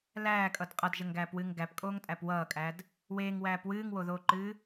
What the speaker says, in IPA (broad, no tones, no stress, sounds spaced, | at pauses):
l æː kʼ ʌ d qʼ ʌ d ʒ ə ŋ ɡ æː p w ɨː ŋ ɡ æ p kʼ oː ŋ tʼ æ p w ʌː kʼ æ d | w eː ŋ w æː p w ɨː ŋ w o ð oː ǃ ɨː